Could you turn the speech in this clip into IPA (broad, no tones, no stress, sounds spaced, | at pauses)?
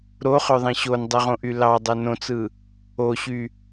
ɾ o χ ø ðˤ ĩ ɕ o n dˤ i ʁ õ ʔ y l ɑ dˤ e n õ t͡s ɯ | o ɕ y